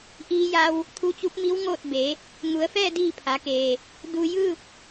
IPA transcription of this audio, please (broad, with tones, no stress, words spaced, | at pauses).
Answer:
ʔiː˧ja˧w | t̪ʰu˧˥t͡ɕu˧˥p̚mi˧˥w ŋoː˥˨t̚be˩˧ | ŋu˩˧ə̯fɛː˥˨ diː˥˨pʰa˩˧keː˩ | du˧jɯː˥˨p̚